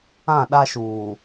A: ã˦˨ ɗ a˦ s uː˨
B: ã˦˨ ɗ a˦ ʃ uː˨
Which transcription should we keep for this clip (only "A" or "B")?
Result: B